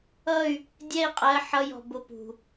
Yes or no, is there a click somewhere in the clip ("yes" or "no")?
no